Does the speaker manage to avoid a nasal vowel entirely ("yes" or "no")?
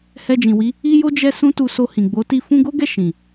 no